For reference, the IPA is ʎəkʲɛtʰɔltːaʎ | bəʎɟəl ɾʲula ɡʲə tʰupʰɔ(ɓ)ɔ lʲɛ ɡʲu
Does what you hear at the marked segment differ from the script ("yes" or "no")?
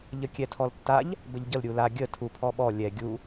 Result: no